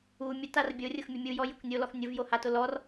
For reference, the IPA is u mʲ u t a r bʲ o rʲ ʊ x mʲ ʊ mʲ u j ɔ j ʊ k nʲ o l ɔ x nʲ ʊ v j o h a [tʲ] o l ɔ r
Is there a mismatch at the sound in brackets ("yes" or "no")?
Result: yes